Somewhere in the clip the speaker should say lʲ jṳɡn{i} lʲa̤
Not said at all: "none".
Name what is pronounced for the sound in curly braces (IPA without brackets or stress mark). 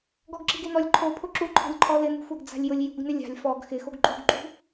ɪ